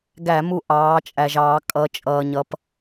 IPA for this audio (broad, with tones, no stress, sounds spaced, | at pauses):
ɡ æ˧˩˧ m u˧˩ ʔ ɑː˩˧ t͡ʃʼ æ˩ ʒ ɑː˧˩˧ kʼ ʌ˩˧ t͡ʃʼ ʌː˩ ɲ ʌ˩˧ p